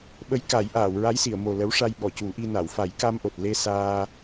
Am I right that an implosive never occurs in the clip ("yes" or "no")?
no